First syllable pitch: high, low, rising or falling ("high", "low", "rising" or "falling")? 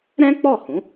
high